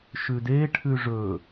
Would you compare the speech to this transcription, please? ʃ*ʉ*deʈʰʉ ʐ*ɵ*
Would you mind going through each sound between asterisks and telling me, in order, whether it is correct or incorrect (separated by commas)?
correct, correct